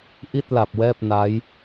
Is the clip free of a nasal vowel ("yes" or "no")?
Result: yes